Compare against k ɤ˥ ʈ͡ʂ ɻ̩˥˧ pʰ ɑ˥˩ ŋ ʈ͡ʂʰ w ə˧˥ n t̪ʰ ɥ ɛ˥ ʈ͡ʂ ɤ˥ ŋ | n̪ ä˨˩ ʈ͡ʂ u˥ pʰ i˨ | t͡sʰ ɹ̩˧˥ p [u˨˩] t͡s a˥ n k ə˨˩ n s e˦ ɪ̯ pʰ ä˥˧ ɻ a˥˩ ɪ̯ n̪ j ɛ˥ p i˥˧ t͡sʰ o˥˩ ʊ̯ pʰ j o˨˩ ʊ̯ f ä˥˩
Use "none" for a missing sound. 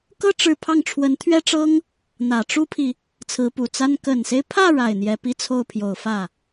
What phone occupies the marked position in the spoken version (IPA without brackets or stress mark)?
u˨˩